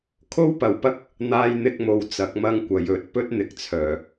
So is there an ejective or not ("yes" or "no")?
no